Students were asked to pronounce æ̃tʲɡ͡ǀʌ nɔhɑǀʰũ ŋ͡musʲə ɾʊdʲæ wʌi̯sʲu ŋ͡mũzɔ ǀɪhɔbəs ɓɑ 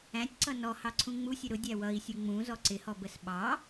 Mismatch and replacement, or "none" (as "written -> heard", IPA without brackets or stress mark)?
ɡ͡ǀ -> ǀ